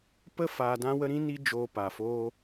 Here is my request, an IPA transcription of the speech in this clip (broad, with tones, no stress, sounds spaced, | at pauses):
p ə˦ f aː˧ d ã˦ w ə˦ ɾ ĩ˦ n i˦ d͡ʒ oː˧ p a˨ f oː˧